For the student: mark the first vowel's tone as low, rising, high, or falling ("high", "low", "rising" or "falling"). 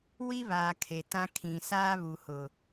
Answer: high